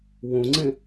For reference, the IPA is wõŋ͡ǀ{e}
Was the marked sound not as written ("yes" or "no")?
yes